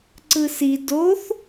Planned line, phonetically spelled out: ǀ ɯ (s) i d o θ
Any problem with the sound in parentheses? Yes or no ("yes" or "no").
no